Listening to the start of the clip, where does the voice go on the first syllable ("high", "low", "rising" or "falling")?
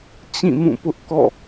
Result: falling